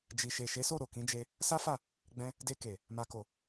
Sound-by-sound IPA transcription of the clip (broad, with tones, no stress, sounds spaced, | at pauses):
d͡ʒ i˨ ʃ e˨ ʃ e˨˦ s o˦˨ ɾ o˨ k ĩ˨˦ d͡ʒ e˧ | s a˦ f a˦˨ | ɡ͡b ɛ̃˧ | d e˧ k e˨ | m a˨ k o˨